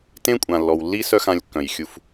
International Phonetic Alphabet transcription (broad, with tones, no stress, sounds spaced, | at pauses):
t ẽ˦ kʷʼ ã˨ lː ɔ˨ w lː i˦ s œ˦ x ã˧ lʲ kː œ̃˨ j xʲ u˧ f